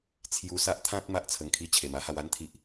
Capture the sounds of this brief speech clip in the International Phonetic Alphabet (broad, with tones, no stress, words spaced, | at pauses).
t͡sʰju˧sa˦ʔt̪ʰã˦t̚ ma˦ʔt͡sʰə˧ŋkʰi˥˧ t͡ɕʰe˨˩ma˦ha˧w a˦nt̪ʰi˨ʔ